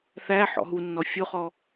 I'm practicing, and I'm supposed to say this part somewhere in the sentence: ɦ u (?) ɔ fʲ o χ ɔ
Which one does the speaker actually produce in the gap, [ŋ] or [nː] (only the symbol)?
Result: nː